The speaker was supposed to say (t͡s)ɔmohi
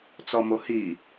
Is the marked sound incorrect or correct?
correct